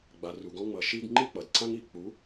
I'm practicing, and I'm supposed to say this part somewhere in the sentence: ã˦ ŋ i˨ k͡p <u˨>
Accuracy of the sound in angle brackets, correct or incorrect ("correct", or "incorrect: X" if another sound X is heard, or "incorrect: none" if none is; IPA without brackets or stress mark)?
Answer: incorrect: u˨˥